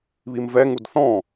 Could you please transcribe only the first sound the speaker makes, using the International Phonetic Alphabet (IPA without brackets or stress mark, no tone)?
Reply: β